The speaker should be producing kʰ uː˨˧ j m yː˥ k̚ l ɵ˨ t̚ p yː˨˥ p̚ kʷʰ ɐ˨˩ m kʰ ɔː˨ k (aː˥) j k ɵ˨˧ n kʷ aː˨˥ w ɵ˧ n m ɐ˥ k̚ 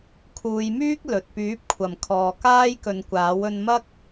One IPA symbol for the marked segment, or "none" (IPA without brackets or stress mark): aː˥